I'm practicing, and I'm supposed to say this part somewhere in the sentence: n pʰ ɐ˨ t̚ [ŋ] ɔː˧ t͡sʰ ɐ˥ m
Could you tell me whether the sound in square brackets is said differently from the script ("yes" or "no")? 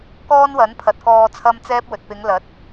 yes